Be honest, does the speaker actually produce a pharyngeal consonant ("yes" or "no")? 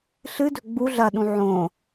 yes